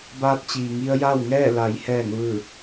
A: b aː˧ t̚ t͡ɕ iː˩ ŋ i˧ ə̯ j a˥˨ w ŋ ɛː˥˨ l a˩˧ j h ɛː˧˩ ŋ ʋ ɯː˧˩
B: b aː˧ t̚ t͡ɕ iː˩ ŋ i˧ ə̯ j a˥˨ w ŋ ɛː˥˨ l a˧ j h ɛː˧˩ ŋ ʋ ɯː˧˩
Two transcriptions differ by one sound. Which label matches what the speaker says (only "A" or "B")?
A